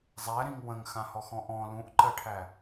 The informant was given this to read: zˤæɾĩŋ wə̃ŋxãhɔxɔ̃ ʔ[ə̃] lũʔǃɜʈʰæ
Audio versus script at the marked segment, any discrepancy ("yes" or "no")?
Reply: yes